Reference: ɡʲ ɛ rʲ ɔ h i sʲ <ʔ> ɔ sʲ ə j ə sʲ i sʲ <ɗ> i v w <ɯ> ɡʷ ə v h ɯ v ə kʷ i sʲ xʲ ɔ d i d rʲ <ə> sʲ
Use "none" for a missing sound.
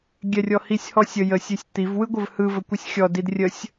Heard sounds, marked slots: h, t̪, ɯ, ə

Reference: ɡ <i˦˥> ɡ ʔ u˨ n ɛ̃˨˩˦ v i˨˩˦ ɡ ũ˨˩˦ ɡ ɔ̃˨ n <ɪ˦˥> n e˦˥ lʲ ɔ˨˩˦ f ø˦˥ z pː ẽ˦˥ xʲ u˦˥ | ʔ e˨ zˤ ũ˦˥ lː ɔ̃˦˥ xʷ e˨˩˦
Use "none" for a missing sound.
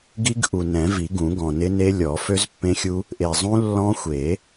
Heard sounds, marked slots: i˦˥, ɪ˦˥

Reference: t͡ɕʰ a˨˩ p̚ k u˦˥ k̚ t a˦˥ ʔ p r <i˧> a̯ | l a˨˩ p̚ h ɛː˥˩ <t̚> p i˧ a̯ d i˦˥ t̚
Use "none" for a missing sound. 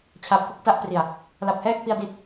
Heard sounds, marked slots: i˨˩, k̚

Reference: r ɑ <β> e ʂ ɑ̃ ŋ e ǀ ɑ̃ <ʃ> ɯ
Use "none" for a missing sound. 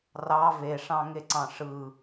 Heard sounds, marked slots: v, ʂ

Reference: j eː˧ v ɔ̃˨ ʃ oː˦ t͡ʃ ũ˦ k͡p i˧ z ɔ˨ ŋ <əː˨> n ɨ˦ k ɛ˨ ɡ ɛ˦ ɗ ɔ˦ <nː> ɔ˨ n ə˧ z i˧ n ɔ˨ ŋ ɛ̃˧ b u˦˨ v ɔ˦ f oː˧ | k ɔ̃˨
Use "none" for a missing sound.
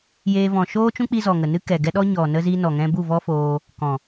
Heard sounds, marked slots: ə˨, ɲ

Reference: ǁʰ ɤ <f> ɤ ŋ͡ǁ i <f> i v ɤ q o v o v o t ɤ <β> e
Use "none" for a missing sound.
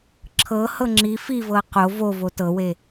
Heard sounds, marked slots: h, f, w

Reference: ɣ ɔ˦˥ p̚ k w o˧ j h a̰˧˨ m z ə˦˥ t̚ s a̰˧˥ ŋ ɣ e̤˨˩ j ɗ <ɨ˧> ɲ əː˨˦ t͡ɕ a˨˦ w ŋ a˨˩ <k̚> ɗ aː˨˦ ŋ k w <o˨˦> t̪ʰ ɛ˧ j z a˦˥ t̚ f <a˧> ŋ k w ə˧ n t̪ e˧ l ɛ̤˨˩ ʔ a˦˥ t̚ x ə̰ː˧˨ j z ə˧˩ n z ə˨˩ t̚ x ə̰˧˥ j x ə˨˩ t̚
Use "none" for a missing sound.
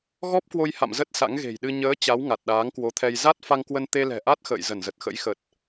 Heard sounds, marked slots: ɨ˧, t̚, o˨˦, a˧

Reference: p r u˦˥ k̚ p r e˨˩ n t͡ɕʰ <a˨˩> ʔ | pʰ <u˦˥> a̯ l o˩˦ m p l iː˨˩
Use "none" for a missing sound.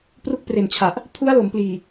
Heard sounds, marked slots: a˨˩, u˦˥

